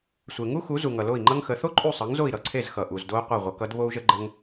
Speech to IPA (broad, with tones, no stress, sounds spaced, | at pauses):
sʷ e˩ ŋ u˥ x u˩˥ z u˩ ŋ ʌ˩ l o˥˩ i̯ ŋ͡ǃ ʌ˥ ŋ x ə˩˥ θ o˥ ǃʼ u˥˩ sˤ ʌ˩˥ ŋ z o˥˩ i̯ ɾ ʌ˥˩ ǀʰ e˥˩ z x ʌ˩ ʔ u˩ z d o˧ u̯ qʷ ʌ˥˩ ʁʷ ʌ˩˥ k ʌ˥ d β o˥ u̯ ʒ ə˥ ɡ͡ǃ ə˥ ŋ